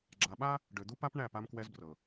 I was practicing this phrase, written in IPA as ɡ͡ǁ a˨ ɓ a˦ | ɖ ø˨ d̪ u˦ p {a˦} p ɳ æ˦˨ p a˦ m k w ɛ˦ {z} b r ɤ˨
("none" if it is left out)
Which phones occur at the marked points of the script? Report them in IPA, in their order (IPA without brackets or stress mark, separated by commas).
a˦, z